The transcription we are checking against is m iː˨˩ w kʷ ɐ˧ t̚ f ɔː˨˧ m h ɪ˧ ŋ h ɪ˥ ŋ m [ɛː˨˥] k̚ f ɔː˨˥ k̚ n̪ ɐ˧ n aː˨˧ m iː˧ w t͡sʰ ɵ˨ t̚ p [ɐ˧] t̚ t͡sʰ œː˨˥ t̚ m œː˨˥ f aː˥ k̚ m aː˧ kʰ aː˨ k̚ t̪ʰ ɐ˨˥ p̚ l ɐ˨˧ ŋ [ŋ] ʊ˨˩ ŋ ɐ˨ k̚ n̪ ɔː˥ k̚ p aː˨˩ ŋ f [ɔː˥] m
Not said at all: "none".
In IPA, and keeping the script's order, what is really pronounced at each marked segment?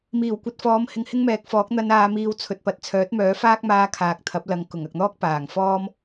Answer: ɛː˨˥, ɐ˨˥, k, ɔː˥

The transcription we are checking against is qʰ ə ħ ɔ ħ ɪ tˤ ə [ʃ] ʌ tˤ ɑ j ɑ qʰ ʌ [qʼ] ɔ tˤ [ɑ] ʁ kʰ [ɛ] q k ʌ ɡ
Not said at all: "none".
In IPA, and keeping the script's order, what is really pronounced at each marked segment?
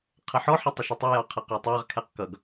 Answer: ʃ, q, ɑ, ɛ

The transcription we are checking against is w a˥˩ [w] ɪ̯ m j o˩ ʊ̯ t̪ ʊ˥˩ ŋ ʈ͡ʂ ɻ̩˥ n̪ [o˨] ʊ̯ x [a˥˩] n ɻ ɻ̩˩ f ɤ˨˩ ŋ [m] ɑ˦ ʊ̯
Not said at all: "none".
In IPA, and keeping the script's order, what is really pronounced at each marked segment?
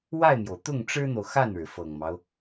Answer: none, o˨, a˥˩, m

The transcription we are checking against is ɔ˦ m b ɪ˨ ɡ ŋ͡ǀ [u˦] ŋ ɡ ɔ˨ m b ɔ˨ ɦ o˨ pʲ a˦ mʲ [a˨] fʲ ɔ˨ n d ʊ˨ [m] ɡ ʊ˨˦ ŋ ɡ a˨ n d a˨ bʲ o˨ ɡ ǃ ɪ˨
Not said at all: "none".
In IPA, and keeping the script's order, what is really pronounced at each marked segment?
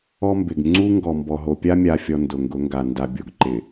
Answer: u˦, a˨, ŋ

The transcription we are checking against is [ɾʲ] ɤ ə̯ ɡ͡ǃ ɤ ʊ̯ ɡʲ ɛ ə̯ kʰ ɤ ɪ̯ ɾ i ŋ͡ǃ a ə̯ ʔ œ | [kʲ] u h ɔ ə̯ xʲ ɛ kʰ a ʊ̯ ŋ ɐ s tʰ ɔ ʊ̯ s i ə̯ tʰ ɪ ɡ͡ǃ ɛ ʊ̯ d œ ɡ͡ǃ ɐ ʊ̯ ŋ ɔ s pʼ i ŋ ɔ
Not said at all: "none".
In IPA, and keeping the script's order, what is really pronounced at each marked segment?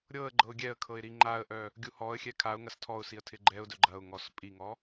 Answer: ɾʲ, ɡʲ

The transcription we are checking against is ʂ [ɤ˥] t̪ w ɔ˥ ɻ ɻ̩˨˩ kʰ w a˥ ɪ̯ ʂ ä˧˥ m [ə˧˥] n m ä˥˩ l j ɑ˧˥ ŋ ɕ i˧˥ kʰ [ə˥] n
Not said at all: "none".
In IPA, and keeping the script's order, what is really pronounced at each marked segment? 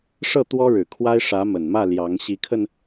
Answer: ɤ˥˩, ə˨˩, ə˧

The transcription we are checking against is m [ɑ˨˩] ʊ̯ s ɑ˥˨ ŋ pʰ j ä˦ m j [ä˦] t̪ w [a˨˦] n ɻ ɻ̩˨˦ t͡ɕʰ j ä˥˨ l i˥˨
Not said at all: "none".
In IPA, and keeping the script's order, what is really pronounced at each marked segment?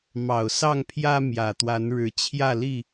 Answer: ɑ˨˩, ä˨˩, a˨˦

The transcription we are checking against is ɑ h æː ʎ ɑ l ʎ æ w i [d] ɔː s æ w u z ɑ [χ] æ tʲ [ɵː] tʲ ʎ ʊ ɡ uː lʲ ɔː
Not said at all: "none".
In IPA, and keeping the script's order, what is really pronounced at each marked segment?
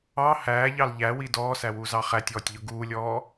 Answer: d, χ, ɔː

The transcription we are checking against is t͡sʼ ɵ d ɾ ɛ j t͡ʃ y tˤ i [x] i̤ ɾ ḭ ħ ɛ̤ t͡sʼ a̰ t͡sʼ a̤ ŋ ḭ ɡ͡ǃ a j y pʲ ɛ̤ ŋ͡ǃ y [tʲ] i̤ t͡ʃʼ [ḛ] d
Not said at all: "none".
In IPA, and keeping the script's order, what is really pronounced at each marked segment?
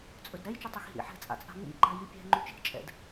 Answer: x, t͡ʃ, ɛ̰

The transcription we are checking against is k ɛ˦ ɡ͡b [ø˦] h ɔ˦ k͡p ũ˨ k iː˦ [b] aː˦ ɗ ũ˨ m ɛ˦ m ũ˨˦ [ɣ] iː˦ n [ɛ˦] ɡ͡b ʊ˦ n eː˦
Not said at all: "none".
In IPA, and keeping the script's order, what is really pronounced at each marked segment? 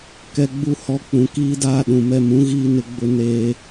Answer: u˦, d, ɣ, ɪ˦

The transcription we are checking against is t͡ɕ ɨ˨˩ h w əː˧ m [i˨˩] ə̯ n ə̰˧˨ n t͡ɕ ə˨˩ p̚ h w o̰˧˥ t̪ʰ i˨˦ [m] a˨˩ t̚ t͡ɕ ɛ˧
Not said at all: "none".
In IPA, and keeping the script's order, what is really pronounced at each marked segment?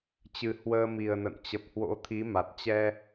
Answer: i˨˩, m

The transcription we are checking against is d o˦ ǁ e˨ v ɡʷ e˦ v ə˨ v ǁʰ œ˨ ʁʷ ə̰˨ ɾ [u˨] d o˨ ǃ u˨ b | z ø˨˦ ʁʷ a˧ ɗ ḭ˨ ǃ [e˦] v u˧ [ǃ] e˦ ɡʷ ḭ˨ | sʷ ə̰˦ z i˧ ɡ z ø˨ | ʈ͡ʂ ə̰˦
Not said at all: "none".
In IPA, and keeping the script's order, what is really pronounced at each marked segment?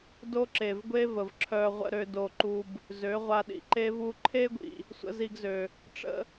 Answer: ø˨, e˦, ǃʰ

